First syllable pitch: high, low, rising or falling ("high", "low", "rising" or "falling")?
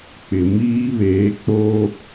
low